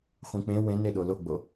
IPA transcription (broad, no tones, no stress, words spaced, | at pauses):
χʷĩk͡pẽ wẽne ɗoloɡ͡bo